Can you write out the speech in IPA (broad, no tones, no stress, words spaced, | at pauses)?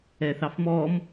ɛθɑfmɔm